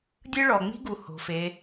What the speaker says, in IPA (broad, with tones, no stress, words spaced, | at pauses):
dʲɯ˥ɭɔ˧ŋ͡mi̤˥ɡu˧ ho̤˧˥fe˧˥